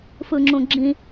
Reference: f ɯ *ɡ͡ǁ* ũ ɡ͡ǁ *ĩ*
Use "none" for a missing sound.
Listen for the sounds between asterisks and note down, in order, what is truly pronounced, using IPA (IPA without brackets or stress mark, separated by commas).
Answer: ŋ͡ǁ, ĩ